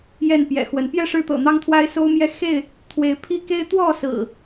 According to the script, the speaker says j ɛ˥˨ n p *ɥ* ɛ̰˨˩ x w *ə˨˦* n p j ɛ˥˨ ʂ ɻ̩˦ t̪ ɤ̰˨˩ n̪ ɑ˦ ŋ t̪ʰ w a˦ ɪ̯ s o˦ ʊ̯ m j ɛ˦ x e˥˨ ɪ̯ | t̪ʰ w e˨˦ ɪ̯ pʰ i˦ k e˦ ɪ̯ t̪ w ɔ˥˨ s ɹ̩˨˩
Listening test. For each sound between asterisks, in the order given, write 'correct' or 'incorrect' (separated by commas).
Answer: incorrect, correct